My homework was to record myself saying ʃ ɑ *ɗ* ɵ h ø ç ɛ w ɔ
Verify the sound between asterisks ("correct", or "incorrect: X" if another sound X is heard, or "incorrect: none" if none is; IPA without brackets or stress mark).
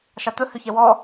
incorrect: t̪